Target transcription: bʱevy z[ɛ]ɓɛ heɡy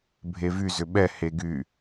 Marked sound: incorrect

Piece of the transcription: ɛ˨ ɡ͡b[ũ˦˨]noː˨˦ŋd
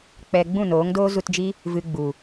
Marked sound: correct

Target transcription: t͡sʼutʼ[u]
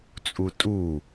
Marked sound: correct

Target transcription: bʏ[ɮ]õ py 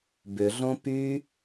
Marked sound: correct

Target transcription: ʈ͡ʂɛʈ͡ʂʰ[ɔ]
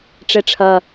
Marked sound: incorrect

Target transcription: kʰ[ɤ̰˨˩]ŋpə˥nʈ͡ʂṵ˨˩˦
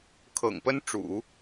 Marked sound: correct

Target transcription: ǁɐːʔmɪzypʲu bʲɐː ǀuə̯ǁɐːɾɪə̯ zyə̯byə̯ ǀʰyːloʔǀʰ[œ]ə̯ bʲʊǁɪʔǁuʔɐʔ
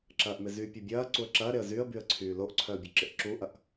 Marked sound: correct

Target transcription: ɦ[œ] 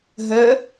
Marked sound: correct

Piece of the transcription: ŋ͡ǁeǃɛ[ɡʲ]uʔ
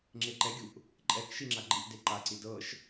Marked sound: correct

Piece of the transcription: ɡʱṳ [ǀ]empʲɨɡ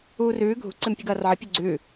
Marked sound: correct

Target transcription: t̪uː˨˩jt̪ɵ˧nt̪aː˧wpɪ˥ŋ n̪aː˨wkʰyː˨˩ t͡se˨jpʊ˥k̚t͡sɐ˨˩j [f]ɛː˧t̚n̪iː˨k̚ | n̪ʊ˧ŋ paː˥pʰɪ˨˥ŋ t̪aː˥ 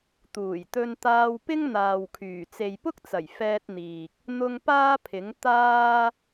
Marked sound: correct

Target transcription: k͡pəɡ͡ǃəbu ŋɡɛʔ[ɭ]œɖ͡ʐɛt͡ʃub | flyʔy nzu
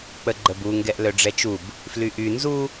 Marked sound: incorrect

